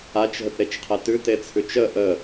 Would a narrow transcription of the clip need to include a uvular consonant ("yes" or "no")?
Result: yes